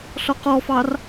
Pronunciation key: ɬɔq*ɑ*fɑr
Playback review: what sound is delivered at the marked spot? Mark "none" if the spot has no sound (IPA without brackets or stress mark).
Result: ɔ